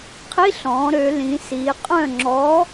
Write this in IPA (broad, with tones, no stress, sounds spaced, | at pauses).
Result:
qʰ i˧˥˧ ɬ ɔ̃ː˩˧ ɾ ø˩˧ l ĩ˩˧ s iː˩˧ qʼ œ̃˦˨ ŋ͡ǁ ɔ˨˥